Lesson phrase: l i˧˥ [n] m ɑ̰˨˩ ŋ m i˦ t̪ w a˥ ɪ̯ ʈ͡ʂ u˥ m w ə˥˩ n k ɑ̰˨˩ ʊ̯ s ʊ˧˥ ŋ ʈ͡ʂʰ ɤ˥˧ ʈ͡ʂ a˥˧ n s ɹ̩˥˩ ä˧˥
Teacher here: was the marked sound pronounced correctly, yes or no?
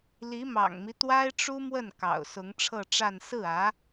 no